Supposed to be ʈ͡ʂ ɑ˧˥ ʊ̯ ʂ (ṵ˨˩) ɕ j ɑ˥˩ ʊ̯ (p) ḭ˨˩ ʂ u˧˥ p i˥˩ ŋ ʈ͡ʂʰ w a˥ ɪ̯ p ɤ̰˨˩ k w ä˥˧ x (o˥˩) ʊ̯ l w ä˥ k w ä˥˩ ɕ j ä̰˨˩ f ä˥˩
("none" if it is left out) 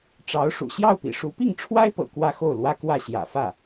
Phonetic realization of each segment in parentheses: ṵ˨˩, p, o˥˩

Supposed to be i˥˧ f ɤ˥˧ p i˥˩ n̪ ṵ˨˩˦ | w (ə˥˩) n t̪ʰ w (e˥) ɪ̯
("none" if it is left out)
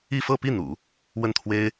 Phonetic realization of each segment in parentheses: ə˥˩, e˥

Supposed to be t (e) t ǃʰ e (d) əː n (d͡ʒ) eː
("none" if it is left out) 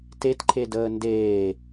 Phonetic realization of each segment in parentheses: e, d, d

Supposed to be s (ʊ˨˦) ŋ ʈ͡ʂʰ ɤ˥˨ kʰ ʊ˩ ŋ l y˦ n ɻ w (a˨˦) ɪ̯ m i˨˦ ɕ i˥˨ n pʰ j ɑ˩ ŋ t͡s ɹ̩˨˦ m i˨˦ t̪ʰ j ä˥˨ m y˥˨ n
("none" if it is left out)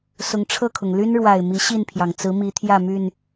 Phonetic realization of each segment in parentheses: ʊ˨˦, a˨˩

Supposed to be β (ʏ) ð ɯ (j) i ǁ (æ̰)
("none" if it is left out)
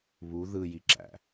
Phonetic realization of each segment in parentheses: u, j, æ̰

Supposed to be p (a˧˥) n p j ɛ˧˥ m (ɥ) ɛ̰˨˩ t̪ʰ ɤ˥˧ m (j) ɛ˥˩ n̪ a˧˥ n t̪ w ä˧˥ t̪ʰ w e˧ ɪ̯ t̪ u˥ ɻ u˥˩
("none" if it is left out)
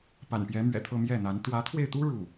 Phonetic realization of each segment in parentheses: a̰˨˩, ɥ, j

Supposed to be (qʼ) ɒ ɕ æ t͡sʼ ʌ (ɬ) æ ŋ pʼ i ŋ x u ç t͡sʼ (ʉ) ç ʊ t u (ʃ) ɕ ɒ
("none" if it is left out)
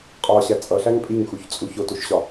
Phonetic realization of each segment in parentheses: qʼ, ɬ, u, ʃ

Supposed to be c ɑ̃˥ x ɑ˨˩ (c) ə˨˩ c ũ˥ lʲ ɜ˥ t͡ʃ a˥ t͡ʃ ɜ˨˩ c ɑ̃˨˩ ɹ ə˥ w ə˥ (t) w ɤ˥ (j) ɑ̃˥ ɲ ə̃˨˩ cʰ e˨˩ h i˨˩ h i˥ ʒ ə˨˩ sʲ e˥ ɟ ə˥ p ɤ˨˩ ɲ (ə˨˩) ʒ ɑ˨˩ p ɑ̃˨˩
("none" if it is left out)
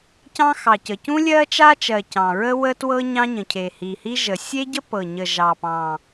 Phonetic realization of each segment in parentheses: c, t, ɲ, ə˨˩

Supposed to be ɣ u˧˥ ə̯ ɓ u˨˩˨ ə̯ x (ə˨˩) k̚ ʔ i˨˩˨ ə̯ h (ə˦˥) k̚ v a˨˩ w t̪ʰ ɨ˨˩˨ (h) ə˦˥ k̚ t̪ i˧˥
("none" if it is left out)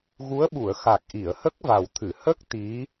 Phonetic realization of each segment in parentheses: a˨˩, ə˦˥, h

